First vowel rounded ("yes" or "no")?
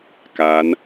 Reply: no